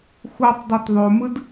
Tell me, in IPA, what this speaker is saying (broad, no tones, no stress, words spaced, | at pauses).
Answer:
xutˤdˤut ðˤomɯd